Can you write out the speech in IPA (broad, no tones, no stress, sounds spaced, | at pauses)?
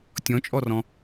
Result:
tʲ ɔ̃ t͡ʃʼ ɔ r ɔ̃